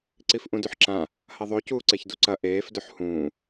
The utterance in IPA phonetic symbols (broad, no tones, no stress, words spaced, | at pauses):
ǀifʔũdʉħǁã | hɐðˤo cuːǀeçduǀɐ ʔeːf dɵħhũː